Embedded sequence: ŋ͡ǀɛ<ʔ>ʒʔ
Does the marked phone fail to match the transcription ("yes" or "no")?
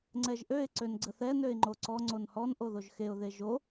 yes